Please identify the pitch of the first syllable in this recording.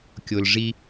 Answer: low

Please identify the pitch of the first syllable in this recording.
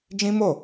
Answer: high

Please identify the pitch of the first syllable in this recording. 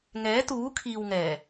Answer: rising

